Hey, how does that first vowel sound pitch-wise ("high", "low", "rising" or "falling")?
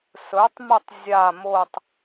rising